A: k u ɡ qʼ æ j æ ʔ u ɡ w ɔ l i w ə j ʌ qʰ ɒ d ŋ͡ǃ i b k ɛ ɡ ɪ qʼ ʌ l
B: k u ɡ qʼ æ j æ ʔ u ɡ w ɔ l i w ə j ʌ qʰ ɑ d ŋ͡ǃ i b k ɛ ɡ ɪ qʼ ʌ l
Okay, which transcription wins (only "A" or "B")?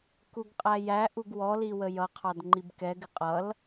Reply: B